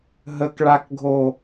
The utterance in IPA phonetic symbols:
ɦ ə k ɭ a k ɡʱ o

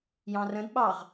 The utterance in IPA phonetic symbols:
j ɑ̃ r ə̃ d ɓ ɑ ʁ

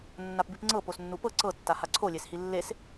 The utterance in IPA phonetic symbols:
nː a p b i p ŋ͡ǀ ɤ p o s nː u p ɤ ǀ ɤ tː a h a ǀʰ o lʲ e s h i lː e s

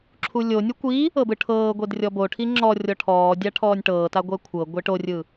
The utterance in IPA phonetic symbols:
ǁʰ u lʲ o nʲ u kʷ i | ɤ b ɯ ʈʰ ɤː ɡʷ e d rʲ ɔ b o ʈʰ i ŋ͡ǁ ɔ rʲ ɔ ʈʰ ɔː dʲ a ʈʰ ɔː nʲ ʈ ɤː t a ɡʷ ɛ kʷʰ ɤ ɡʷ e ʈ o rʲ ɯ

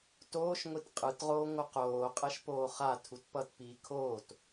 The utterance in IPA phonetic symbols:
t oː ʃ ŋʷ i t qʼ ɯ t ʁ oː ŋʷ ʌ q oː qʼ ɛ ʃ p oː χ a tʰ u t p ʌ t p iː kʰ oː t

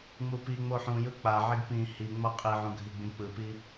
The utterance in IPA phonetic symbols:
ŋ͡m u p i ŋ͡m o ħ ũ j ɯ k͡p a ʕ i ɡ p ĩ h i ŋ͡m ʌ qʼ i ʕ ũ ɡʱ i ɡ͡b ĩ k͡p ɯ p i

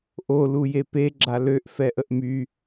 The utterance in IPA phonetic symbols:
ʔ o l u j e p e ɡ͡ǁ a l ø ʔ f ɛ ʔ ə ʔ m y

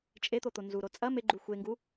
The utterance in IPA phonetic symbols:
t͡ʃʼ e t̪ o t̪ o n z u ɾ o t͡sʼ ɐ m e ɡ͡ǃ u xʷ e ŋ ɡ u

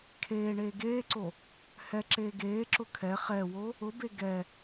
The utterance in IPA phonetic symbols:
kʰ eː ɳ eː ɡ eː ǀ o | h ɛ ǁ eː ɡ eː ǁ ʊ kʰ ɛ χ ɛ w o | ʊ b e ɡ ɛ

